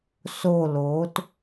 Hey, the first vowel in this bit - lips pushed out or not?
yes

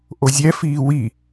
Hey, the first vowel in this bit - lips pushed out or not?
yes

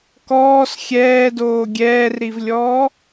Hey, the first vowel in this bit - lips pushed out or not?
yes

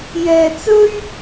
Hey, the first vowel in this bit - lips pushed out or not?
no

